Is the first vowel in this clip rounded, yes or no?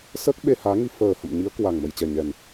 no